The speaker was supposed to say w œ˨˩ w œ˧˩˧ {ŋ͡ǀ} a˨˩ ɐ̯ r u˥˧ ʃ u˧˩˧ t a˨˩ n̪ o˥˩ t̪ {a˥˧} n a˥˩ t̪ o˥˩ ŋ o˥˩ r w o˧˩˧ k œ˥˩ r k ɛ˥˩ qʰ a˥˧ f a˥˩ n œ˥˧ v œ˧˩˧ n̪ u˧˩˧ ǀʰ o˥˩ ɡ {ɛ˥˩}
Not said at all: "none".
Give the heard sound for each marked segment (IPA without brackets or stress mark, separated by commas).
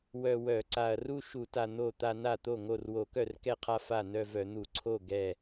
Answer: ǀ, a˥˧, ɛ˥˩